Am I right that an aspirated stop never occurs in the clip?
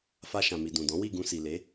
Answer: yes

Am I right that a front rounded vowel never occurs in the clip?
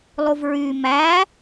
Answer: no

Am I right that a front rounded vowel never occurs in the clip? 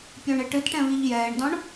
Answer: yes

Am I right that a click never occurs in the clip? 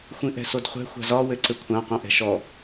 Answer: no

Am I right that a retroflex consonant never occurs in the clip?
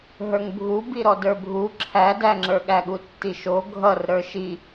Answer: yes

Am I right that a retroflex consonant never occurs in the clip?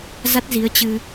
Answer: yes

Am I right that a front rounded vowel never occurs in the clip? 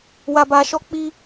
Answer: yes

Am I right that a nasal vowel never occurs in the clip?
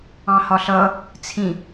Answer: no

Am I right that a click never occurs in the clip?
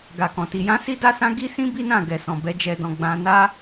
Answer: yes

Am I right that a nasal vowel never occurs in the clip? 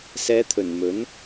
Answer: yes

